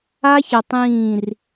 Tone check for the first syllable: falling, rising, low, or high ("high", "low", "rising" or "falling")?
high